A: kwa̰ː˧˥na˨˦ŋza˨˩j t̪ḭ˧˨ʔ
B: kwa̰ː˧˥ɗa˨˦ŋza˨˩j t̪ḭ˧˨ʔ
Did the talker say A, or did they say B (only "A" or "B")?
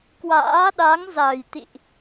B